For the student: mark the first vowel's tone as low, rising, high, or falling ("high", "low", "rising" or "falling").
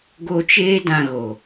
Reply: high